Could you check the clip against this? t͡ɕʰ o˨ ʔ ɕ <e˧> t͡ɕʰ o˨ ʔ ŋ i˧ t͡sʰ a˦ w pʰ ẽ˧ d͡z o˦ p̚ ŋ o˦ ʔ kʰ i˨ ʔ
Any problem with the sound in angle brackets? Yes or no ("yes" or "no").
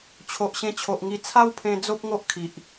yes